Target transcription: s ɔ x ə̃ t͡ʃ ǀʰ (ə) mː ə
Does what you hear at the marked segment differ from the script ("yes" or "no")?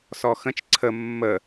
no